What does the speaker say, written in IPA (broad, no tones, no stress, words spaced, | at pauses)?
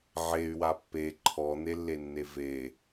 ʕey̯wa pːe ǃʰɔn̪elːenːe ve